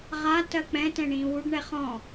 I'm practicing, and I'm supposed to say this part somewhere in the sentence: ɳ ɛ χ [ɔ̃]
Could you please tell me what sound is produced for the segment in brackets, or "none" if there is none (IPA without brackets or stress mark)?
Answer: ɔ̃